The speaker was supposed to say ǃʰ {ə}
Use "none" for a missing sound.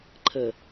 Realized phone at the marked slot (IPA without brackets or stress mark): ə